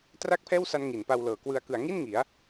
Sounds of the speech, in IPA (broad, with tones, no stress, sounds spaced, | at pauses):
t r a˥˩ k̚ pʰ ɛː˥˩ w s a˧ n ŋ i˨˩ n p a˧ w l ɤː˨˩ k w ɯ˧ a̯ k ɯ˩˦ a̯ ŋ i˥˩ n ŋ i˩˦ a̯